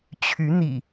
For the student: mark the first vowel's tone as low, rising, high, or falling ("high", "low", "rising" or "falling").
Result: rising